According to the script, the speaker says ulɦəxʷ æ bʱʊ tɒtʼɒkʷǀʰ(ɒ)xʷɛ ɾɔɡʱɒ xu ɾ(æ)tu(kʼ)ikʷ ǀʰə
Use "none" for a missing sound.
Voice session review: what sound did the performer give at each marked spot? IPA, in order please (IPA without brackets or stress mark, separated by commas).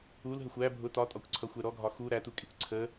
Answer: ʌ, æ, kʼ